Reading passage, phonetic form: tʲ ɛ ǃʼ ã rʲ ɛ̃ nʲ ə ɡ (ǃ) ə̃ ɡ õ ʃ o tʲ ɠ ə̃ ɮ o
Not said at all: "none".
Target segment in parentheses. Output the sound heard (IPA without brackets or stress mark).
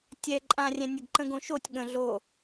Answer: ǃ